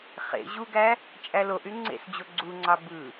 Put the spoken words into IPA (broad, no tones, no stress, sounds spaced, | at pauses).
χ ḛ ʑ u ɡ æ | t͡ʃʼ æ l o ʔ y ŋ͡ǀ ḛ s d͡ʑ o ɡ͡ǀ u ŋ͡ǀ ɑ b ɯ